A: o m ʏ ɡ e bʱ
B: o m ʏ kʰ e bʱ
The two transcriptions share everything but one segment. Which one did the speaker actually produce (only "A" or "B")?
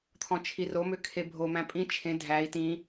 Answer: B